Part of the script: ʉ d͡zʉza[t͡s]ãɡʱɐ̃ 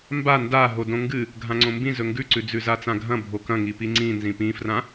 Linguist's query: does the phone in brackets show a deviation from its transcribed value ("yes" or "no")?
no